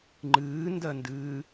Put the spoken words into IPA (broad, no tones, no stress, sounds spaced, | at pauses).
ŋ͡ǃ ɨː n d ɜ n d ɨː